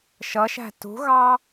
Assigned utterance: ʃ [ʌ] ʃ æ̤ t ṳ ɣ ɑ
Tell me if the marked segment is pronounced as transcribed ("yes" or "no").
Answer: yes